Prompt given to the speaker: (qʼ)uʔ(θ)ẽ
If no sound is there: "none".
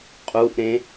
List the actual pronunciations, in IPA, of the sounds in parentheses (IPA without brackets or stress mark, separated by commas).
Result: qʼ, ɾ